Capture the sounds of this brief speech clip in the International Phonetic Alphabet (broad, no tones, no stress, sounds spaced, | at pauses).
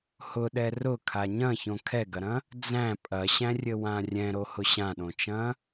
h ʊ ɗ ɛ r ʊ kʰ a ɲ ɐ̃ ç õ kʰ ɛ ɡ ɐ ɾ ɐ̃ | d͡z æ̃ pʼ ɐ ɕ æ̃ rʲ ɘ w ã rʲ ɛ̃ ɾ o h ʊ ɕ ã ɗ õ t͡ʃ ɐ̃